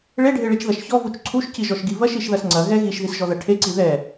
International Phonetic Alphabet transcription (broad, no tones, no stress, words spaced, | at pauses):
ɭeɖʱeɭit͡ʃðɐʃ çɔvut͡ʃ ǀʰuʃciʒɔʃɡi vɐʃiʃðɐs ŋ͡ǀɐɣɛ ɣiʃðisʒɔðɐ ʈʰeǀi ðɛ